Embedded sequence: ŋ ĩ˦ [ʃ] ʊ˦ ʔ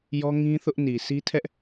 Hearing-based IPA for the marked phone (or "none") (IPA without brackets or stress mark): θ